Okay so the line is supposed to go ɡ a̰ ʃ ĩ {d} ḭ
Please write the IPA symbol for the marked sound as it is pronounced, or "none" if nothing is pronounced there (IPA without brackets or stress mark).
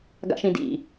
d